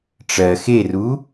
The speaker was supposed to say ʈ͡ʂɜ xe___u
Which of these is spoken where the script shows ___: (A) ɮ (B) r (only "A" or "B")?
B